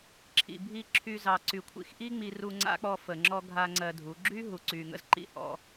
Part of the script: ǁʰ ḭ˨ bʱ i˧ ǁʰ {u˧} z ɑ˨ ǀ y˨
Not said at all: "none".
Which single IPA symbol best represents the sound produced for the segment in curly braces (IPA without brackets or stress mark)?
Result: y˧